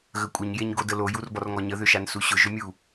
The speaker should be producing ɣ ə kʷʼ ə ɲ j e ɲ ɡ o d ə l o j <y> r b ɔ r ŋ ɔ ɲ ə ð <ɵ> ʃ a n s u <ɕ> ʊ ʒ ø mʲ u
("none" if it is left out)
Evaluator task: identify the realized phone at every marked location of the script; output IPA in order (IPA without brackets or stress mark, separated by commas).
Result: u, ø, ɕ